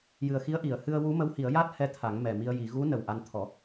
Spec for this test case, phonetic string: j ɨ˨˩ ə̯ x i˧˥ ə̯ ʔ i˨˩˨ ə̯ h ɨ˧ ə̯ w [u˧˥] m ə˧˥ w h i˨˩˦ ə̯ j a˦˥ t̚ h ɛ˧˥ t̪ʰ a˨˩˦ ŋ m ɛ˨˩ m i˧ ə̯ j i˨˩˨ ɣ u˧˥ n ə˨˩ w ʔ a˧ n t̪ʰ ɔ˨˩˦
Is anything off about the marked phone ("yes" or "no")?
no